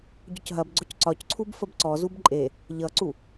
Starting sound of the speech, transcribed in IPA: ɟ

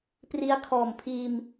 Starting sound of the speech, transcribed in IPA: p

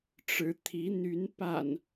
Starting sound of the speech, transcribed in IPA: ʈ͡ʂ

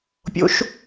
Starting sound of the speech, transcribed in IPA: pʲ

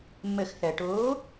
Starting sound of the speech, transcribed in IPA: mː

